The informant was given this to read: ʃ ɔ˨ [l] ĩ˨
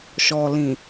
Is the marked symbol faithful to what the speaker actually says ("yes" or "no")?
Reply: yes